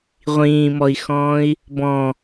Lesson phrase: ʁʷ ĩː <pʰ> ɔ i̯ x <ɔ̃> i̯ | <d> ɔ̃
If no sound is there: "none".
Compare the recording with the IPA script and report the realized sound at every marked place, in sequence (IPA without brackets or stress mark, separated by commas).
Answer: m, ɔ̃ː, b